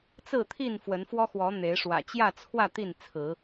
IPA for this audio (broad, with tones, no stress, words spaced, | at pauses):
t͡sɹ̩˥˨t̪ʰi˥˨n fwə˨˦nfwɔ˦xwɔ˨˦ n̪e˨˦ɪ̯ ʂwä̰˨˩t͡ɕjä˥˨t͡sʰwä˥˨ t̪i˥˨nt͡sʰɹ̩˨˦